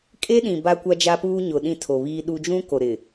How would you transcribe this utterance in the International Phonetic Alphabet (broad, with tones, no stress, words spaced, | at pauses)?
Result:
kʼe˦ɗĩ˨ ba˦kʷa˦d͡ʒa˦puː˦ ɲʊ˨ ɗĩ˦˨tʰo˨βiː˦ɗu˦ d͡ʒũ˦ko˨ɾɪ˨